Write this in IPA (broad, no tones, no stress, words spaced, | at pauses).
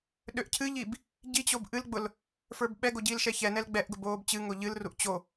ɗøʔcʰɨʎib | ɟit͡ɕob ʔɨlɡ͡bʊl | fə˞bɓɛɡo ɟiːlʃɛçɛnɛl ɡ͡bɛʔɡʊb oːbt͡ɕɨŋo ʎɨlruʔ t͡ɕo